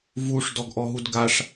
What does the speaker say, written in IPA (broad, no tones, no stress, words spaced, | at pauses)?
vuʂ dɔɡʔɔɦudɡaʂ